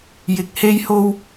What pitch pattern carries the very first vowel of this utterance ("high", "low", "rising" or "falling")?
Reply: low